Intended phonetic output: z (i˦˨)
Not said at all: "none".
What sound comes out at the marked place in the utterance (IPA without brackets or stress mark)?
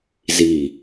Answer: i˦˨